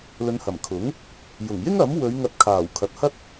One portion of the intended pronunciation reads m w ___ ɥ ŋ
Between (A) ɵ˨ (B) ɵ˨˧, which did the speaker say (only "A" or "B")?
B